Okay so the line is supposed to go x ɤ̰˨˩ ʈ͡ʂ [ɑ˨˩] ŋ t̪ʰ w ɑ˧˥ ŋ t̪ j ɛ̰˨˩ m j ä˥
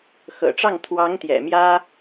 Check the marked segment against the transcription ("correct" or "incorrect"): incorrect